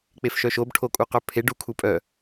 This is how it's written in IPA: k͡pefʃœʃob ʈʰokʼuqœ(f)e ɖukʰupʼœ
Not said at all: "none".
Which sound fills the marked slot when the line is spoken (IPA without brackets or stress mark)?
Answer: pʰ